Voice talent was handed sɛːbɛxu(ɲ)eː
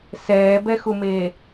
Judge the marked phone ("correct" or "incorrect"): incorrect